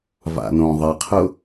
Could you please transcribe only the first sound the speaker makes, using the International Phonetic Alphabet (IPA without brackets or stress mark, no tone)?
v